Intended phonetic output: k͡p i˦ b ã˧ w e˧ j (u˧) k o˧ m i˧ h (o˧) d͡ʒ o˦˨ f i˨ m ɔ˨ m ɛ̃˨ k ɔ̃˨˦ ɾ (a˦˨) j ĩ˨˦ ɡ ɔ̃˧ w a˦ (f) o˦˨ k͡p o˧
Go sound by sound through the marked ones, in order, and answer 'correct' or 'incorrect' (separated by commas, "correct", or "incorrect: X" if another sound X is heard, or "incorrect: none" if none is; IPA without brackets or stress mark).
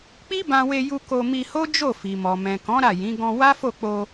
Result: correct, incorrect: o˦, correct, correct